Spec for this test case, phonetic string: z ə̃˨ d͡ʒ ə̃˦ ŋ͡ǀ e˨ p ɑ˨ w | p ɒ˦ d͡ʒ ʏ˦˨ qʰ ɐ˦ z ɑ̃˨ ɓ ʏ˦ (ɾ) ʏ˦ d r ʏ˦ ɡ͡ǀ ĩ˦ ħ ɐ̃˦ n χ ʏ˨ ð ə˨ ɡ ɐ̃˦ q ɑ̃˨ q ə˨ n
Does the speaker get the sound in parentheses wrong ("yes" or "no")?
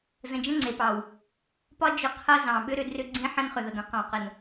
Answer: no